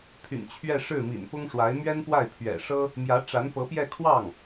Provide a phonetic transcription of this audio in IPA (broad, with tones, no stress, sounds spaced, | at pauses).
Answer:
pʰ y̰˨˩ n t͡ɕʰ ɥ ɛ˥˧ ʂ ɻ̩˥˩ m ḭ˨˩ n p ʊ˥ ŋ ʂ w a˧˥ ɪ̯ m ɥ ɛ˥ n p w a˥˩ ɪ̯ pʰ ɥ ɛ̰˨˩ ʂ ɤ˥ | m j ä˧˥ ʈ͡ʂ a˧˥ n p ɤ˧˥ p j ɛ˥˧ kʰ w ɑ˥˩ ŋ